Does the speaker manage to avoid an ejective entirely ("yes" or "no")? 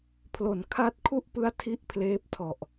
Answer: yes